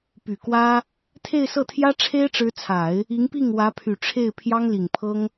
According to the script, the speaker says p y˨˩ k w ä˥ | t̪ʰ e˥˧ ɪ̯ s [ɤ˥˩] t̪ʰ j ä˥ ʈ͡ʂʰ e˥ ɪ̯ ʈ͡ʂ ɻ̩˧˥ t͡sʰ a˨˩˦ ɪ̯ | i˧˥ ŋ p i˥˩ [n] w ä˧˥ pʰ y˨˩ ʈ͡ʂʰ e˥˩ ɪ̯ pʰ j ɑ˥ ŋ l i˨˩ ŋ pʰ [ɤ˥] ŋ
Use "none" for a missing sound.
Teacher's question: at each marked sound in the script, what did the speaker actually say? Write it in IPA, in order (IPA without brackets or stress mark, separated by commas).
ɤ˥˩, ŋ, ɤ˥